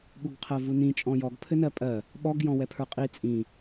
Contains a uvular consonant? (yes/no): yes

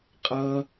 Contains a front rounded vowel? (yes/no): no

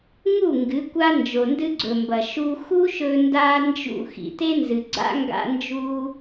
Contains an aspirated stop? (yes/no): no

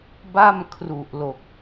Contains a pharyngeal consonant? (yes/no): no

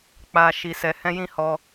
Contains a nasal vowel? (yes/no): yes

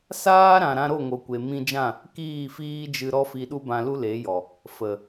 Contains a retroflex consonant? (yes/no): no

